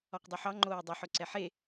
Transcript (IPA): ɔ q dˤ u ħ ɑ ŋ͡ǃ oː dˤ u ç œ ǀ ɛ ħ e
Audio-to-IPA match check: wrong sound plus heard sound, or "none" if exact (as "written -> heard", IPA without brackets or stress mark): ç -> ħ